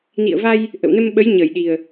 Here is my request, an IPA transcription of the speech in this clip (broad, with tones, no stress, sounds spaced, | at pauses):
n ḭ˧˨ ə̯ v a˧ j | ʔ ə̰˧˨ w n ə˧ m ɓ ə˨˦ j ɲ ə˧˩ j ɗ i˨˩ ə̯